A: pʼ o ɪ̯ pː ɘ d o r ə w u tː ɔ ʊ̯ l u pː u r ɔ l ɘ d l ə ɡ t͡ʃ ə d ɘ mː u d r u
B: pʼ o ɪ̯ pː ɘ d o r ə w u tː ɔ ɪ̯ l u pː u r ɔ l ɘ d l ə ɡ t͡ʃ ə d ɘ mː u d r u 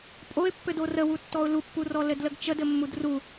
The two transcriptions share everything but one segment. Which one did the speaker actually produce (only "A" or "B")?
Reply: A